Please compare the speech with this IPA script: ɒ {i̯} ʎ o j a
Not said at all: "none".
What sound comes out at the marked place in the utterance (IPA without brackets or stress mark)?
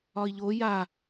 i̯